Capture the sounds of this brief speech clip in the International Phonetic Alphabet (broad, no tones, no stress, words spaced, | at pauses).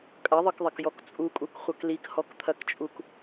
kʼɐðˤɤkðˤɐkjɔk t͡sʼukʼukχʷɐk likhɔkt̪ʰɐkt͡ʃʼuk